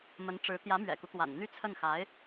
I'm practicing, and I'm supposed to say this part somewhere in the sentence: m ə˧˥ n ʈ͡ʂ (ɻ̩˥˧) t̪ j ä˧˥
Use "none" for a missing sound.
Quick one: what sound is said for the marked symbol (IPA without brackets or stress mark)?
ɻ̩˧˥